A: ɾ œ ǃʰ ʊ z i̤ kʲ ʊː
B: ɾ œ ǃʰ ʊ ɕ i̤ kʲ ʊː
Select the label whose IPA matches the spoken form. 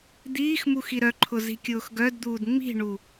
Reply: A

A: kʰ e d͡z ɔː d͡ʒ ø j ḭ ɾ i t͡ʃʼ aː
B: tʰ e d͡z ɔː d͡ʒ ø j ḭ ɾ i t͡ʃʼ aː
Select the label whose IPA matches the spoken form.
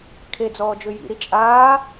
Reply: A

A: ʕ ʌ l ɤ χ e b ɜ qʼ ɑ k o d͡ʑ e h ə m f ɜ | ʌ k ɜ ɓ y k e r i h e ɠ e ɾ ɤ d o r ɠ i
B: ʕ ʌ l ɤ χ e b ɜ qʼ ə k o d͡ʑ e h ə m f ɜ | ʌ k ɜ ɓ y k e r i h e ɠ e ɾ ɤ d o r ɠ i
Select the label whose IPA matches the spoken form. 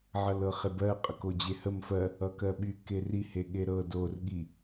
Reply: B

